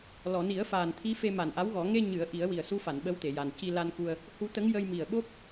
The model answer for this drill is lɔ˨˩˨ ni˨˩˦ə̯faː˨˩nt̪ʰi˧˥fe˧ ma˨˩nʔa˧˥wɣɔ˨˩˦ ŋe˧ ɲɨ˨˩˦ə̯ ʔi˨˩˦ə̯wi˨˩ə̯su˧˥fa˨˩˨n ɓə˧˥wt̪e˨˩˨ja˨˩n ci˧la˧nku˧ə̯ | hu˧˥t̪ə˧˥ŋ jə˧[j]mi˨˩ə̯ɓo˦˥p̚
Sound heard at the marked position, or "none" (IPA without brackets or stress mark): j